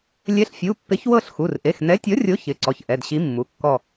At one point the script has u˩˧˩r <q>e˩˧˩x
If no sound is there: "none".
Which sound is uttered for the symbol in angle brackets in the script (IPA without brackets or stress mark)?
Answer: ʔ